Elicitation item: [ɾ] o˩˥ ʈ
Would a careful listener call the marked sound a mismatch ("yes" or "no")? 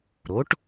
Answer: no